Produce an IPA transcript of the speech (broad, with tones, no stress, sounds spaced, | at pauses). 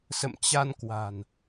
s ə̰˧˨ m t͡ɕ a˧ n k w a̤˨˩ n